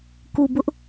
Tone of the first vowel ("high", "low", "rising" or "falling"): low